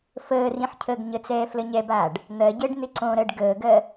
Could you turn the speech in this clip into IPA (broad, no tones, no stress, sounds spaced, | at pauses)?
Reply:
f əː r ĩ ħ cʰ əː ɡ ɲ ə t͡s ɛː f l ə ɲ ɛ b aː ɖ | n̪ ɜ ɟ əː ɖ n̪ ɪ ǀ õ ɾ ɜ ɖ ɡ əː ɡ ɜ